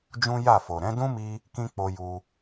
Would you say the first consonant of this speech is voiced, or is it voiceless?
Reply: voiced